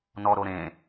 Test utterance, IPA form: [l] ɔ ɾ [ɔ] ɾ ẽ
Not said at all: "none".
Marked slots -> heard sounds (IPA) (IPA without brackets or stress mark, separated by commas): n, o